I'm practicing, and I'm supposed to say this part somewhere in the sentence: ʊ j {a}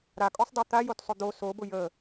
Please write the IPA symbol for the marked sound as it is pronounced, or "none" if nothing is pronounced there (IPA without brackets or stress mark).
ə